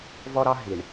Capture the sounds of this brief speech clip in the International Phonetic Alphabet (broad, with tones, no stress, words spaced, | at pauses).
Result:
vɔ˦ɾɑ˦ ɦi˨ɳ